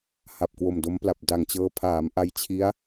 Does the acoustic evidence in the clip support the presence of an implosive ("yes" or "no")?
no